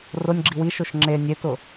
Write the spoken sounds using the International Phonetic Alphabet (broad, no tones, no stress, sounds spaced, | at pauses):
r ʊ nʲ ɡ͡ǁ i w i ʃ o ʃ ŋ͡ǁ e nʲ e t ʊ